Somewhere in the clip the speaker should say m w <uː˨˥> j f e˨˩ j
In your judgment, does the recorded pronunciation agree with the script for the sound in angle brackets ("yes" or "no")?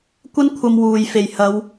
no